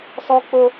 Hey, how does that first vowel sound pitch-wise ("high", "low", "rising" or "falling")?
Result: high